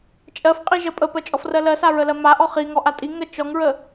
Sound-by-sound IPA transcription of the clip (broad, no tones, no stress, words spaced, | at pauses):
t͡ʃʼɜfqʼiʒɜ pʼəpɜt͡ʃʼɔfrɜ lɜsaɹəlɜ maʔɔ χiŋɔʔa tʼiŋɜ t͡ʃɔŋɹə